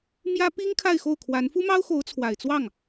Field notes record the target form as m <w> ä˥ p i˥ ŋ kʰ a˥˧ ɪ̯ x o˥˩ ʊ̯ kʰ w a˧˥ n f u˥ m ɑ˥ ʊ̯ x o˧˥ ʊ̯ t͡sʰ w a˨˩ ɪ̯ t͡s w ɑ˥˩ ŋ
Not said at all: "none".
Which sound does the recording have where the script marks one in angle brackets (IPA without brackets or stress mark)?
j